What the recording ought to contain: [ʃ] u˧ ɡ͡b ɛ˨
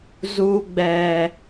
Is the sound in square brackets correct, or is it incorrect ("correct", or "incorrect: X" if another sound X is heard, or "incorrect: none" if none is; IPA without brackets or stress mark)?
incorrect: z